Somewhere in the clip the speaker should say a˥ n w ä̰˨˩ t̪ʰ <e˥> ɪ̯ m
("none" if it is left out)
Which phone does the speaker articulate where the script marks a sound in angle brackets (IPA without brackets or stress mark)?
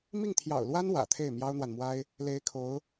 e˥˩